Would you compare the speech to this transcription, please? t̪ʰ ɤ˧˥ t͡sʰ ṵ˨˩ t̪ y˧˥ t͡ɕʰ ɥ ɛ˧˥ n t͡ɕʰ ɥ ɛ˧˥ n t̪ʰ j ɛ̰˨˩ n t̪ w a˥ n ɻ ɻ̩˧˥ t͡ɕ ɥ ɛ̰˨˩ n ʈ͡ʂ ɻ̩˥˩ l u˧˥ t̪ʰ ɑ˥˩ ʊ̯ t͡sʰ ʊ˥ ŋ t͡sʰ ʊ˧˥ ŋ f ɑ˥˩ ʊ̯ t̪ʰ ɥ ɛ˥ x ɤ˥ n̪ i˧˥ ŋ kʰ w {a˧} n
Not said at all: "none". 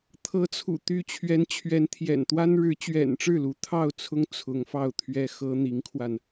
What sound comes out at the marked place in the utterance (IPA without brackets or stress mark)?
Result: a˧